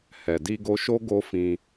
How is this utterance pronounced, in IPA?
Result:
hɛ˨di˧ɡo˧ʃo˦ ɡo˦fĩ˧

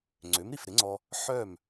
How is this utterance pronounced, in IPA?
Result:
ŋ͡ǀø˩˥mɾi˩fɾɪ˩˥ŋ͡ǀɔ˧ | ħœ˥˩m

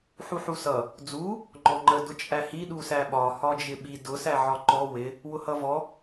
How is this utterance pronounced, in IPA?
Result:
ħuħusʌ | d͡zu | ŋ͡ǃɔŋ͡ǃə dʊt͡ʃʼæhi ɗusæɓɒ hɒd͡ʒɪɓi dʊ sæʕɒǃɔ wɪ | wʊhʌvɔ

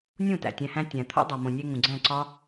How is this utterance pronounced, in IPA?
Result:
nʲũ˦˨ tæ̰˨tʲæ̃˧hæ̃˦ tʲæ̃˨t̪ʰo̰˦ dˤo˨mõ˨nʲe˧ ŋũ˨ɡ͡ǀæ̃˦˨ ǀɒ˦

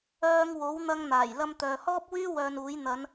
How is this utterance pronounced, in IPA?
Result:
œː˧ŋ wo˨˥w n̪ɐ˧ŋn̪aː˨˩j lɐ˧mt̪œː˨hɔː˥p̚wyː˥ wœː˧nuː˨˥j n̪ɐ˨˧n

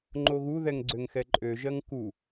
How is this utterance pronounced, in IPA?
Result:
ŋ͡ǃoɣu ðɛŋɡ͡ǀøŋxɛǃʼø ʒɜŋku

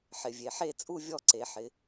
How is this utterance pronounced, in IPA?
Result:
ħɪ˩˧vʲe˩˧ħe˥˧t͡sʼu˥˧ vʲɔ˥˧ǀe˩˧ ħɪ˩˧

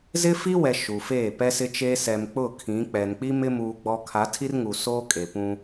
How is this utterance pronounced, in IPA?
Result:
zɪ˦fi˦wɛ˨ ʃu˨feː˦˨ pɛ˦sɪ˦t͡ʃeː˦ sɛ˨mk͡pʊ˦˨ kʰĩ˨˦k͡pɛ˨n k͡pi˦mɪ˦ muː˦ɡ͡bɔ˦ kʰa˨˦tʰi˦rŋu˨ soː˦kʼe˨pũ˦

